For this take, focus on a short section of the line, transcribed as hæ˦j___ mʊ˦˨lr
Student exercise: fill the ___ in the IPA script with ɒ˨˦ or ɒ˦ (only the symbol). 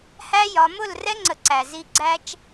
ɒ˨˦